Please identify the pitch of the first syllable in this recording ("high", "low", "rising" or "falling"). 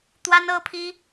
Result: high